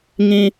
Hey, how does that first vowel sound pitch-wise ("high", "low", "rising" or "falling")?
high